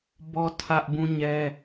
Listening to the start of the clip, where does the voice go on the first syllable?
high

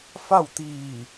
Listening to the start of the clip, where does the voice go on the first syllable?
falling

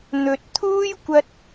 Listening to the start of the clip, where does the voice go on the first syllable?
low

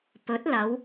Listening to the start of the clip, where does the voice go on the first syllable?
rising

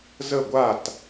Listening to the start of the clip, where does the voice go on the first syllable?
falling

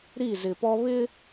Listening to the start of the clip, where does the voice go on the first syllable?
falling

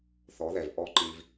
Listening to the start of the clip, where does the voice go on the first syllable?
rising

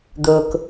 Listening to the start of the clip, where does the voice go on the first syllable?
low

